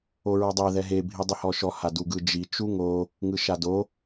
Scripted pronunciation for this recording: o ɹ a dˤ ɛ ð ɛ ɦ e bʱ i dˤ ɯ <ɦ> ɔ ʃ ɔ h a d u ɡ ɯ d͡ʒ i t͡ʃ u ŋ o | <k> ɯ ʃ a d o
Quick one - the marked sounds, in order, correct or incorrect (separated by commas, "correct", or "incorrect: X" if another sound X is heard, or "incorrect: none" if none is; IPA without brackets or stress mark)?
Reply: incorrect: h, incorrect: ŋ